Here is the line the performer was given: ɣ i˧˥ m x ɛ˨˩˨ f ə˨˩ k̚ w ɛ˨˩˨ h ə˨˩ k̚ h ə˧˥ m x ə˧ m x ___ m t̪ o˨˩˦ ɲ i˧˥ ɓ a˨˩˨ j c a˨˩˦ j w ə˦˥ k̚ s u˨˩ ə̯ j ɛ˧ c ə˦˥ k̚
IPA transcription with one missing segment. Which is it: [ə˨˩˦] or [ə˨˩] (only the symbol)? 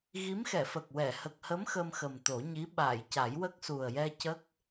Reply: ə˨˩